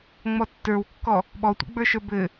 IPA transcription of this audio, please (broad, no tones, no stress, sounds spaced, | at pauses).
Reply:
ŋ͡m ɔ tː ə˞ w kː ɔ | ɓ ɔ tʷ ḭ ɡ͡b ə˞ ʃ ə˞ b ɘ